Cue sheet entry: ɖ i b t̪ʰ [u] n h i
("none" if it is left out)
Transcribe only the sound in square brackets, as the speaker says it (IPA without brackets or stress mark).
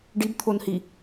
o